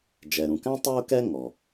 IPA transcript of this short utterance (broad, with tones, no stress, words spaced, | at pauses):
d͡ʒɛ˩ɾũ˩kæ̃˥ tˤø˥ʊ̯kɛ˥ ŋɔ˩